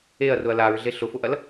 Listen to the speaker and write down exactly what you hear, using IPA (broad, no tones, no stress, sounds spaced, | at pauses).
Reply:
e ɐ̯ r ʊ ɐ̯ l a ɹ ɮ e ɬ ʊ f ʊ ʔ ɐ l